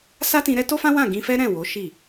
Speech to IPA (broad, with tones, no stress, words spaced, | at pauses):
sa˦tĩ˧ ɾɛ˦to˦fã˦ wã˦˨ɡĩ˧fɛ˦ ɾɛ̃˦˨wo˨˦ ʃi˦˨